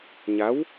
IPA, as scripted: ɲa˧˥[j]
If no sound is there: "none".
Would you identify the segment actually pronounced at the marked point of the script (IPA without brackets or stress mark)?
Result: w